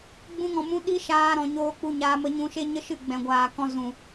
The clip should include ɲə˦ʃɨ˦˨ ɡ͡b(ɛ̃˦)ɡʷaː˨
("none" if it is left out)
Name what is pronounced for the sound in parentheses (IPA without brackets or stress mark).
ɛ̃˨